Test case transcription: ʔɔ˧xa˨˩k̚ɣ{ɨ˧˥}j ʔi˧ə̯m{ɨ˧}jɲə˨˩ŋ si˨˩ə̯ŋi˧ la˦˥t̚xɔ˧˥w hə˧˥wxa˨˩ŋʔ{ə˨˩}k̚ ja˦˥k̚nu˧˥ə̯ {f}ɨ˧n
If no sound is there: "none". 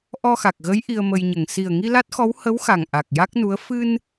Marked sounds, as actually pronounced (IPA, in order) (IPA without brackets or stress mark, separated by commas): ə˧˥, ə˧, a˨˩, f